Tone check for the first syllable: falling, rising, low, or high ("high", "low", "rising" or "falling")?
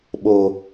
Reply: low